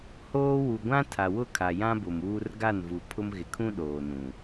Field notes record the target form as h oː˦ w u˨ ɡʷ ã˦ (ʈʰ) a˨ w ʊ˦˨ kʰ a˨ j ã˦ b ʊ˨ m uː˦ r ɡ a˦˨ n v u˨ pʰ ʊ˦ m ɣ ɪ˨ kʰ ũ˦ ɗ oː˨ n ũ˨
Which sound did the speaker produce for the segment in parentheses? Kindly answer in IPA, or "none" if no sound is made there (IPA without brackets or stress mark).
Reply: tʰ